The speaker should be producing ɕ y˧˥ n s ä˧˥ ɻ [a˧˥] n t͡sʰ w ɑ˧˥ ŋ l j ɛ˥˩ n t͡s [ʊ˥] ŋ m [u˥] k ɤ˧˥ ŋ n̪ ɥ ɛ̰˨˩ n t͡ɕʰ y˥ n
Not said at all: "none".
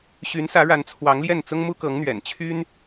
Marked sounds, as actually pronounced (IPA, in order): a˧˥, ʊ˥, u˥

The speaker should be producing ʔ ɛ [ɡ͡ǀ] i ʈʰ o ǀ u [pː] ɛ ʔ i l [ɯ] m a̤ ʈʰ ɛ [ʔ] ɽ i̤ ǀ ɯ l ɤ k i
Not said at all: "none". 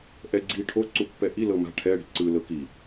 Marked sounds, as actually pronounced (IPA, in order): ɡ͡ǀ, pː, ɤ, none

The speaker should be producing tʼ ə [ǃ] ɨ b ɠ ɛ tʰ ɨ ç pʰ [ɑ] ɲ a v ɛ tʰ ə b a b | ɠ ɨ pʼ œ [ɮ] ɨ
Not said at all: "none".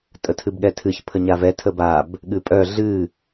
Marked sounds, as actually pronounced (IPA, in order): tʰ, ə, ɮ

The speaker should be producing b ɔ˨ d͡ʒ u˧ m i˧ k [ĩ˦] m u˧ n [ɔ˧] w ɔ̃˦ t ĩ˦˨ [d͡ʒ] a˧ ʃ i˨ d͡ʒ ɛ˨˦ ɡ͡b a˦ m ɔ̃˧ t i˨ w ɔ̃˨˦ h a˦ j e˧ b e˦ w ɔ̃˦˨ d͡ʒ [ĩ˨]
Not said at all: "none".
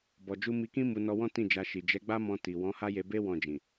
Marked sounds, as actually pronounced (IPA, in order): ĩ˦, ɔ˧, d͡ʒ, ĩ˨

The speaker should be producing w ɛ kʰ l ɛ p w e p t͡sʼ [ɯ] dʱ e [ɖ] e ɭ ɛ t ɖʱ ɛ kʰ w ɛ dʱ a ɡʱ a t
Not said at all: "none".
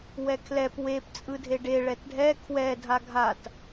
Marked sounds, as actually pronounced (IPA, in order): ɯ, ɖ

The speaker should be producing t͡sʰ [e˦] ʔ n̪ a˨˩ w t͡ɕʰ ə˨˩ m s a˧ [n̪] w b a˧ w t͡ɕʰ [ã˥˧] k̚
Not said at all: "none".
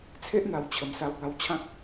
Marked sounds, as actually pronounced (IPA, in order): e˦, none, ã˦

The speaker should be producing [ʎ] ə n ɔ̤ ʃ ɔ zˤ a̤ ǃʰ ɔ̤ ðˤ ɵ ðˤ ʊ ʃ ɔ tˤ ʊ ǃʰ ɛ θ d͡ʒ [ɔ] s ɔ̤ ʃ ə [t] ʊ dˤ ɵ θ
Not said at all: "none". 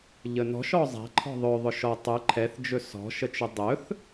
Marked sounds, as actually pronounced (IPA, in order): ʎ, ɵ, t͡ʃ

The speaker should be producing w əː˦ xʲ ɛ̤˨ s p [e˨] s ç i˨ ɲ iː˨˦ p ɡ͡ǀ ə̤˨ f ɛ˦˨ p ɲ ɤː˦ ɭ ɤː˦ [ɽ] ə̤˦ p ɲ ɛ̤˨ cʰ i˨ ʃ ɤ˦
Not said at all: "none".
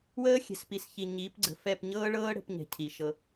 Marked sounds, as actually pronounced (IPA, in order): i˨, ɽ

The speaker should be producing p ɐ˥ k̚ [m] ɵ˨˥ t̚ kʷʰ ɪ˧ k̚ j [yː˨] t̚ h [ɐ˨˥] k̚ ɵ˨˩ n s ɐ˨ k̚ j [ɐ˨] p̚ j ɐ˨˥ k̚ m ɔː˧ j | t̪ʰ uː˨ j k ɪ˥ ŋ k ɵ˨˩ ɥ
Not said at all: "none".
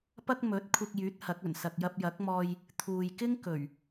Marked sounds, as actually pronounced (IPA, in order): m, yː˨˥, ɐ˨˥, ɐ˧

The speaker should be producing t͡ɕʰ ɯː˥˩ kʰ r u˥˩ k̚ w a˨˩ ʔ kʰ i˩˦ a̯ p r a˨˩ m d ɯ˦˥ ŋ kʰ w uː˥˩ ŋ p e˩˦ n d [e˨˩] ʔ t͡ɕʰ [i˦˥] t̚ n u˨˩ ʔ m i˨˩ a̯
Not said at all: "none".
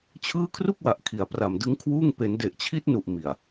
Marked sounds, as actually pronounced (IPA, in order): e˨˩, i˦˥

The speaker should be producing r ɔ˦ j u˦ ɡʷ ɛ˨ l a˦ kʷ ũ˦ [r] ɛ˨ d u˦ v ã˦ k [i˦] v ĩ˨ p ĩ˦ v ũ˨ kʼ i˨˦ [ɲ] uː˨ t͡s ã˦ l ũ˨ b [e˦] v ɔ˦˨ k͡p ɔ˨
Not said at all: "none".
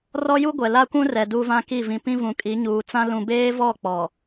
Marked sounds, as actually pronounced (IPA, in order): r, i˦˨, ɲ, eː˦

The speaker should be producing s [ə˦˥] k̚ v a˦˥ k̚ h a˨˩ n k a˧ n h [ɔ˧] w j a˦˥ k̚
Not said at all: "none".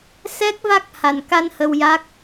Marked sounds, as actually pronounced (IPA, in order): ɛ˦˥, ə˧

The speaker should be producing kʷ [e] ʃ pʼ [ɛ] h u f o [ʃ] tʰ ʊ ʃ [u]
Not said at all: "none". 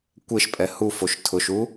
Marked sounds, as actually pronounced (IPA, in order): e, ɛ, ʃ, u

